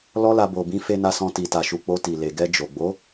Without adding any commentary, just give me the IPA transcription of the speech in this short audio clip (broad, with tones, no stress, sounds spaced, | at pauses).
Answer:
l ɔ˦ l a˧ b o˨ b ĩ˨˦ f e˧ n a˧ s ɔ̃˧ t i˨ t a˨ ʃ u˨ k͡p o˧ t i˨ l e˨ ɡ ɛ˧ d͡ʒ o˨ ɡ͡b o˨˦